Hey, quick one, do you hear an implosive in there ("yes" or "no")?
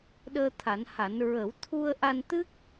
yes